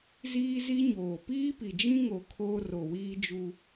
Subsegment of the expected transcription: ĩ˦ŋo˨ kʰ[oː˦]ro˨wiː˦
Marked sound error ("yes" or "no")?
no